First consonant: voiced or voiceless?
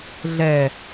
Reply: voiced